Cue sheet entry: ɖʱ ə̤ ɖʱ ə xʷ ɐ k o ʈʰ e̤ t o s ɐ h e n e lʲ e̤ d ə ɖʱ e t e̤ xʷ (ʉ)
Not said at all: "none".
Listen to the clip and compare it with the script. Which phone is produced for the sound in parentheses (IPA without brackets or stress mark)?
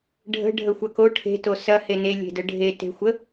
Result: ə